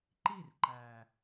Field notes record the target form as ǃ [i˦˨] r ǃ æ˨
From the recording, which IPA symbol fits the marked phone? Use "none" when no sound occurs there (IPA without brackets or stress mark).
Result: i˦˨